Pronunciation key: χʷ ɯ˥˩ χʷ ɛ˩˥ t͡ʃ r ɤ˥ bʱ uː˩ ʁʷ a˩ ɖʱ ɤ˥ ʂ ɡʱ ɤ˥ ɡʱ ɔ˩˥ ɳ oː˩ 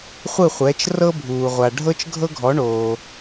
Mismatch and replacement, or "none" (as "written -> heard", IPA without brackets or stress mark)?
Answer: ʂ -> t͡ʃ